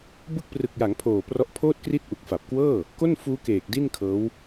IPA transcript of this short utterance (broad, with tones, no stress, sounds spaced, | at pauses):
b ɯ˦˥ k̚ p r ɯ˨˩ k̚ j a˩˦ ŋ pʰ oː˨˩ p r ɔ˦˥ ʔ pʰ oː˥˩ t̚ k r i˥˩ t̚ ʔ u˨˩ k̚ f a˨˩ p̚ k w ɤː˥˩ | k o˥˩ n f uː˦˥ k eː˨˩ k̚ d i˥˩ n kʰ ɤː˦˥ w